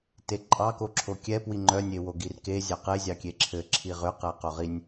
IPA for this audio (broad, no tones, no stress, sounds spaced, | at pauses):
t e ǃʼ ɑ k o ǁʰ o kʲ ɛ p w i ŋ͡ǃ œ nʲ e w o ɡ i r k e zʲ ɑ q e zʲ ɑ kʲ e ǁʰ ɘ ǁʰ i ʁ ʏ q ɛ q o ʁ i nʲ